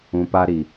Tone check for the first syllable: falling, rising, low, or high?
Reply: low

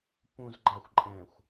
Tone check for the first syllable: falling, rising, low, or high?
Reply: low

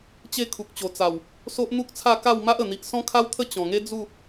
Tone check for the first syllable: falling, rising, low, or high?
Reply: falling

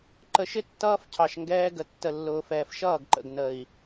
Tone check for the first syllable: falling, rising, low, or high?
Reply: low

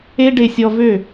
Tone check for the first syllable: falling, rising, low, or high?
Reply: high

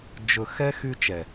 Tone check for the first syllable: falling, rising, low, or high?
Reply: low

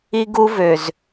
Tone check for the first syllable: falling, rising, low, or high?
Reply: high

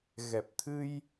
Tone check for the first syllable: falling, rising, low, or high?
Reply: low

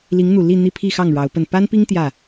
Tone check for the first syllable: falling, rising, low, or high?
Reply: rising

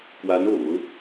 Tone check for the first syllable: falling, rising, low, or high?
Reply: rising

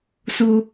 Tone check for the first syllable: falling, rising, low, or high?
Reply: high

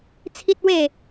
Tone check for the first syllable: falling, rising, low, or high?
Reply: high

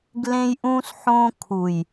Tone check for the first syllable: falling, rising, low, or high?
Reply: high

